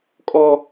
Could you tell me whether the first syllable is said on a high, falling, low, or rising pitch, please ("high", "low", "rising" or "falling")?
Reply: high